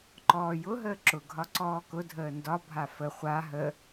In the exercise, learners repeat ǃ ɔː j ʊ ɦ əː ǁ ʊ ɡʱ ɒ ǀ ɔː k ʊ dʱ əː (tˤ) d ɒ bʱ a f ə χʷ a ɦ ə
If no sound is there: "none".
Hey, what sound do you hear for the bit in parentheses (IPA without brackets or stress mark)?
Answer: n